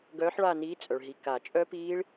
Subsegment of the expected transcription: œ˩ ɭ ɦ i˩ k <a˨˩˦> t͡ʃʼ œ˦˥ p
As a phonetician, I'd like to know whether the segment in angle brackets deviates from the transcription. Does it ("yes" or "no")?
no